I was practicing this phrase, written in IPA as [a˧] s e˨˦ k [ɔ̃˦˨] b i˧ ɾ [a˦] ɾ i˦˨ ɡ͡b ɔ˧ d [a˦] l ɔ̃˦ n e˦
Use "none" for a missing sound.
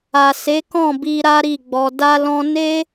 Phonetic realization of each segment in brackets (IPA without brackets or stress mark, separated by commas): a˨, ɔ̃˦˨, a˦, a˦